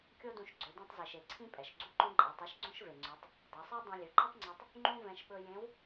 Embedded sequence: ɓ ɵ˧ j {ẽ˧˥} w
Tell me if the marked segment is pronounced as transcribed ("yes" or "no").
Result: yes